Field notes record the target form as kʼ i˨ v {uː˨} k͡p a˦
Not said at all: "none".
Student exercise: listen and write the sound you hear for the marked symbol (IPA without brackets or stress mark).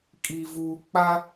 uː˨